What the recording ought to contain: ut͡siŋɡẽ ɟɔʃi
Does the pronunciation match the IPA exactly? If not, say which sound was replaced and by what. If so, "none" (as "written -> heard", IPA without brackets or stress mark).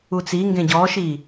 none